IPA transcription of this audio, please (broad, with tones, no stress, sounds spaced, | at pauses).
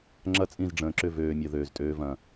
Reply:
ŋ͡ǁ ɐ˦ t͡sʼ ĩ˦˨ z ɖ͡ʐ ə̃ː˨ ǁ ʏ˦˨ v øː˨ mʲ ɐ˨ ð øː˨ z tʼ øː˧ v ɐ̃˨